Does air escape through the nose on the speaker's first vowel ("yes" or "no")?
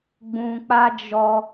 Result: yes